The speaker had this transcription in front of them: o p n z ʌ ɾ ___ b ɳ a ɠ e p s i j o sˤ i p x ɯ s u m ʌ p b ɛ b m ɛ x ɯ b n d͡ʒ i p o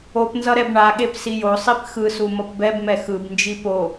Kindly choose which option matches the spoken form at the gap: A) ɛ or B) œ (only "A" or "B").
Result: A